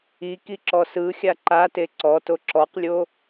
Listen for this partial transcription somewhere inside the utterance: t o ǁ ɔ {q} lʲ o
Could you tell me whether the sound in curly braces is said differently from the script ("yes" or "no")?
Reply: no